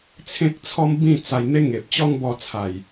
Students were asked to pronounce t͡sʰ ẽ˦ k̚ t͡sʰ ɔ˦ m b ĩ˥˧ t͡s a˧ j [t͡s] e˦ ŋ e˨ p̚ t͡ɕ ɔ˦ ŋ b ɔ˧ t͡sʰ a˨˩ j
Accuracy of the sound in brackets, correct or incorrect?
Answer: incorrect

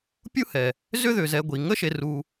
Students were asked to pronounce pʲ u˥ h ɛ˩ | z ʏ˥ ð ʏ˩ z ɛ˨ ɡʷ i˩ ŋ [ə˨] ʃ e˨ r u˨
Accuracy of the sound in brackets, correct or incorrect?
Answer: incorrect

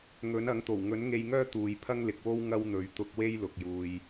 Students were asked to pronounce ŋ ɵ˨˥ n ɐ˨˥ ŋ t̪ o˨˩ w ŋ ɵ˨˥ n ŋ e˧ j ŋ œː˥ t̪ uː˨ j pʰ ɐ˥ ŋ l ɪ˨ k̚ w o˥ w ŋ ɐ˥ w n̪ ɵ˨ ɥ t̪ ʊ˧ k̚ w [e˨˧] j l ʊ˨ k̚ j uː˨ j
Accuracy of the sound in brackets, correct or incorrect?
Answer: incorrect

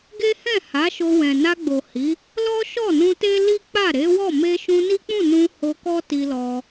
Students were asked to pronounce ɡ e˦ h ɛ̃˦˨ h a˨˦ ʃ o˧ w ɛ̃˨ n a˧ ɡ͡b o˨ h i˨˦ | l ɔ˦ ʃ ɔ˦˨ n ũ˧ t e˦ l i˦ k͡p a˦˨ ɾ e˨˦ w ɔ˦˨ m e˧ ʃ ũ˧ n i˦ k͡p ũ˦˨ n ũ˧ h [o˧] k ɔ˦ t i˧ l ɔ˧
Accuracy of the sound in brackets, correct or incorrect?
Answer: correct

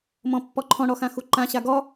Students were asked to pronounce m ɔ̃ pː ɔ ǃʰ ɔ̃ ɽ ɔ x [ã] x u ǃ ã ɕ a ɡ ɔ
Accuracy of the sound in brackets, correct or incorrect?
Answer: correct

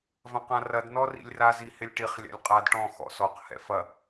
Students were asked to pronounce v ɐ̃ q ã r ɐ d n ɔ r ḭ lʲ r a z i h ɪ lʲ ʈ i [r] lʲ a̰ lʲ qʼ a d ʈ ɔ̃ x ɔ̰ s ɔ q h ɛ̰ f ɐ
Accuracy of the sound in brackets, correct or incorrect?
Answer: incorrect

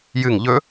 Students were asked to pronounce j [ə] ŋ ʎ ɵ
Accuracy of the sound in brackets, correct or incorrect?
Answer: incorrect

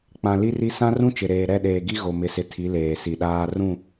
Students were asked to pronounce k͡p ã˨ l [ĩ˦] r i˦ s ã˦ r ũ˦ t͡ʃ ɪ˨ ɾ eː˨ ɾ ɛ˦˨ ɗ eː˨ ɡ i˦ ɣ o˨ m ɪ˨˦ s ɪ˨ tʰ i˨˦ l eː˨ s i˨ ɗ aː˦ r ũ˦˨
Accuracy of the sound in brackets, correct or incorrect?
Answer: incorrect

